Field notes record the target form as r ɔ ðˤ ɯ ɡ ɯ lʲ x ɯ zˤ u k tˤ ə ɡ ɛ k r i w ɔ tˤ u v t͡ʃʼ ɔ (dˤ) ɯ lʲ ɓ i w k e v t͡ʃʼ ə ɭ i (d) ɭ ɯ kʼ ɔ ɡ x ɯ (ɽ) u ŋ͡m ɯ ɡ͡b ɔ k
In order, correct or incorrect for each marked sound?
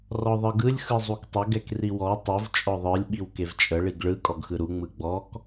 incorrect, incorrect, incorrect

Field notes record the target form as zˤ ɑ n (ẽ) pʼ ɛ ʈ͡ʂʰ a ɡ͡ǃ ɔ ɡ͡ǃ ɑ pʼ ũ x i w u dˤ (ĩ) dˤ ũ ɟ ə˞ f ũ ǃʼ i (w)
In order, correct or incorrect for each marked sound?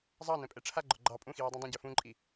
incorrect, correct, incorrect

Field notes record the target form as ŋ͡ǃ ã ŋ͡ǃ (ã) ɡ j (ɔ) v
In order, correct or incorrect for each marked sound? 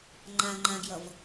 correct, incorrect

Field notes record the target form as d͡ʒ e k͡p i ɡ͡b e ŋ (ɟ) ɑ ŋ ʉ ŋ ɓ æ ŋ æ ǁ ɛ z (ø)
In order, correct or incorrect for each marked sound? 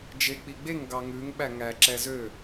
incorrect, correct

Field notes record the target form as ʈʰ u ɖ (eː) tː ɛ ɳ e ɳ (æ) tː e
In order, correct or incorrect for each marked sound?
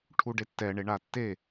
incorrect, incorrect

